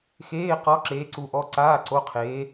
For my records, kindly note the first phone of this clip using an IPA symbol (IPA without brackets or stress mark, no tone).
x